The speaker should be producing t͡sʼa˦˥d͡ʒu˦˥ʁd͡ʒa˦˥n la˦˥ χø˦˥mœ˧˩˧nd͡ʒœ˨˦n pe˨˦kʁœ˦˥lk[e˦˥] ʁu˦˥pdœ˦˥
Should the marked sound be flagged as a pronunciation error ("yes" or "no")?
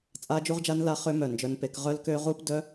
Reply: yes